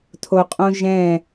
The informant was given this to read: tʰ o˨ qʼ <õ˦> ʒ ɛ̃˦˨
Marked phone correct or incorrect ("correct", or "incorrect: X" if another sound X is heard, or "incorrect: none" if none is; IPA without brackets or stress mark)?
correct